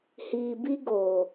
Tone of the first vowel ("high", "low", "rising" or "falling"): low